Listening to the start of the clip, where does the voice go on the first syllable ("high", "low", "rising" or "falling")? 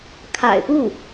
low